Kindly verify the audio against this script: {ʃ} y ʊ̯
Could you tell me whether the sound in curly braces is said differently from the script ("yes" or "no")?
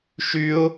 no